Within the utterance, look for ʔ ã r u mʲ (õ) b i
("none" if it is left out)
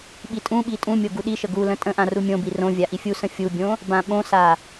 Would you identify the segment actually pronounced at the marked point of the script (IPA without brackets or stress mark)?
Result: õ